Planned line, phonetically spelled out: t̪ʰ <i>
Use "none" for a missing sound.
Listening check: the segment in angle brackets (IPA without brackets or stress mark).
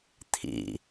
ḭ